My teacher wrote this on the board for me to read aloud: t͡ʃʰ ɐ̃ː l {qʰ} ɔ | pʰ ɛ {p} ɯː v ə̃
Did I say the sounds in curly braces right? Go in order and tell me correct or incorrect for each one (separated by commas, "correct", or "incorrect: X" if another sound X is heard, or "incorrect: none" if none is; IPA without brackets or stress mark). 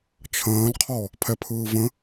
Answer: correct, incorrect: pʰ